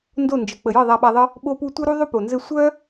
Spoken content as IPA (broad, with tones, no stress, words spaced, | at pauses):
ndo˦˨nd͡ʒɘ˨ k͡pə˨jɤ˦˨ ðˤa˧ɓa˧ðˤɘ˦ | ɓo˦pu˦ tʷœ˦ɾu˦ðˤo˦po˨ nzɘ˦ sʷœ˦